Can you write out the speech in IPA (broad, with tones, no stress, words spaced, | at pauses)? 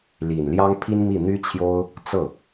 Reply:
li˨˩nljɑ˥ŋ pʰi˥nmi˥˩ n̪y˥t͡ɕʰjo˥ʊ̯ | t͡sɤ˥˩